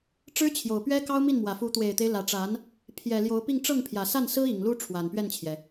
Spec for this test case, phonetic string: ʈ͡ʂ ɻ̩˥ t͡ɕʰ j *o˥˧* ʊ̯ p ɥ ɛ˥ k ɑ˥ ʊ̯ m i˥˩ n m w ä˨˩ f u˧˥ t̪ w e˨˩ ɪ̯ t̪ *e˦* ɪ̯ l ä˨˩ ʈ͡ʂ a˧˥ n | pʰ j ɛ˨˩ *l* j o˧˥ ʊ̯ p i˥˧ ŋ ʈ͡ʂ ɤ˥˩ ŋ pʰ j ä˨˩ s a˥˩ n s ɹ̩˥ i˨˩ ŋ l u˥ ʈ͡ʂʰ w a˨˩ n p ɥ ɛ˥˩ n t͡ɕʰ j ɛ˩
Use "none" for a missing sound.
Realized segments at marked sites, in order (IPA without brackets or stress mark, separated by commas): o˨˩, e˦, l